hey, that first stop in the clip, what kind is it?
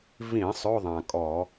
ejective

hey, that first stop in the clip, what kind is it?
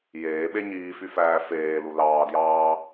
implosive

